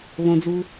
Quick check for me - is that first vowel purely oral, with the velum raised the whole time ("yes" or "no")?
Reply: no